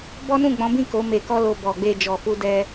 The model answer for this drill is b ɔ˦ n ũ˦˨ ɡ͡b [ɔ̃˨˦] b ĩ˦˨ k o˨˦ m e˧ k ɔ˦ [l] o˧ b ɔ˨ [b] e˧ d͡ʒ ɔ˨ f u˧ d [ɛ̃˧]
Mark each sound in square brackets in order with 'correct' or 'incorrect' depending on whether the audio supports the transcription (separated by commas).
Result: correct, correct, incorrect, incorrect